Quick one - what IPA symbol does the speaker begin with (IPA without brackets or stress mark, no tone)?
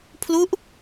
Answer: pʰ